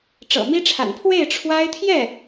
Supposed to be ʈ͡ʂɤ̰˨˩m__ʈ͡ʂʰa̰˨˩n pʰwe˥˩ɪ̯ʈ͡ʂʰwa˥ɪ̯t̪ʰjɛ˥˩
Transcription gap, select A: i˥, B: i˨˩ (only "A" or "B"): A